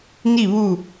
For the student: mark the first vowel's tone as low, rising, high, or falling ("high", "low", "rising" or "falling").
falling